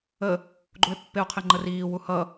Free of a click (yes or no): no